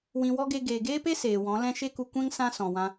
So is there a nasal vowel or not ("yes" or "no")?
yes